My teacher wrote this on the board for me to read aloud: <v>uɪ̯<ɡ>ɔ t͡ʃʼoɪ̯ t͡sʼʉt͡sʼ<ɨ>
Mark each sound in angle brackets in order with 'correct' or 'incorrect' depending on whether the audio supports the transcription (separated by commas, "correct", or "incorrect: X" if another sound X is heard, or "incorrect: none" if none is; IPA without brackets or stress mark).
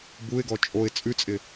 incorrect: b, correct, incorrect: ɪ